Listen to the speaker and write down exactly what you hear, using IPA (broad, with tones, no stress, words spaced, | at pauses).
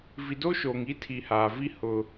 vi˨do˦ʃoː˨ŋ i˦ tʰi˨haː˨vi˦ hʊ˦